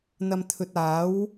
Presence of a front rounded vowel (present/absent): absent